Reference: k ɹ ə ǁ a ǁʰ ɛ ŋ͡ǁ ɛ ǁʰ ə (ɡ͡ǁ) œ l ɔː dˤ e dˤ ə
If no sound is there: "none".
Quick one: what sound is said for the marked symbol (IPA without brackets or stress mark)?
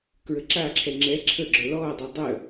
ɡ͡ǁ